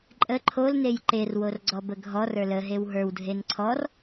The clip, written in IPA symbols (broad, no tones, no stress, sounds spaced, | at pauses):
ǃʼ ə ǃʰ o l n e j ǃ e r w o r ɡ͡ǀ ɔ b ə ɡʱ ɔ r ə˞ l ə ɦ e w ɦ ə˞ w dʱ e n ǀʰ ɔ r